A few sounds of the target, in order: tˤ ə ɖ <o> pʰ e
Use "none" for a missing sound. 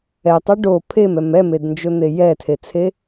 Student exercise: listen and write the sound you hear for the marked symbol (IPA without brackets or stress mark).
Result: o